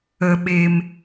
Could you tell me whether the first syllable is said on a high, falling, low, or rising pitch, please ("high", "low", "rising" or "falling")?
low